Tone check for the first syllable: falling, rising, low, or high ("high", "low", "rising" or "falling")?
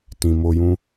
low